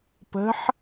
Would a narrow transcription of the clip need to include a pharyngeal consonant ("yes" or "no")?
yes